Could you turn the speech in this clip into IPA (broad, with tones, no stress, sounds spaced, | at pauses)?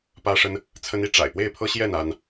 p ä˦ ʂ ə˦ n | t͡sʰ ə˦ n i˦ ʈ͡ʂ a̰˨˩ ɪ̯ p w e˥˨ ɪ̯ pʰ ɤ˦ ɕ j ɛ˥˨ n a˦ n